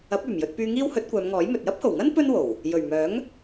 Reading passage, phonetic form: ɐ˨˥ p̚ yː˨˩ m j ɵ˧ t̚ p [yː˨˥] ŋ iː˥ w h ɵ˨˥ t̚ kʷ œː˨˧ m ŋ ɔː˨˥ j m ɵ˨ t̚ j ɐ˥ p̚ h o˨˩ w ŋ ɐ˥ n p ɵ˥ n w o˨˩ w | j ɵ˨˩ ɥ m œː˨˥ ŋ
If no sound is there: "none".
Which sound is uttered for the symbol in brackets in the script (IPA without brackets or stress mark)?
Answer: yː˧